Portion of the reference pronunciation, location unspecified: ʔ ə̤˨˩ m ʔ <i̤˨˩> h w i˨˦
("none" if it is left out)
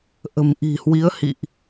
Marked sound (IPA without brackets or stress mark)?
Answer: i̤˨˩